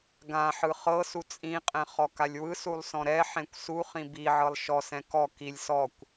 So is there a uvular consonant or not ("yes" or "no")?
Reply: yes